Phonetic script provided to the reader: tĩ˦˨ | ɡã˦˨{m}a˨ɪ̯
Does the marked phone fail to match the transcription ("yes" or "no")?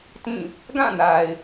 yes